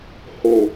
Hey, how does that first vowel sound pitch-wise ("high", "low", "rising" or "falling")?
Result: low